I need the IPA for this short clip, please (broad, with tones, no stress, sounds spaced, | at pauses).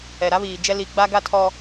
ɛ˨ ɾ a˦ β iː˨ d͡ʒ ɛ˦ l i˨ ɡ͡b a˦ ɡ a˦ tʰ ɔ˦